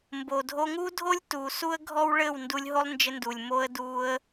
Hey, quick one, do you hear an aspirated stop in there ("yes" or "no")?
no